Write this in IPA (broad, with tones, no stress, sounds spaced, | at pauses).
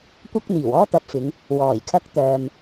kʷ ɐ˥ k̚ n̪ iː˨˩ w ɔː˥ t̪ ɐ˨˥ p̚ f ɪ˨˧ ŋ | w ɔː˨˩ j kʰ ɐ˥ k̚ t̪ œː˨ m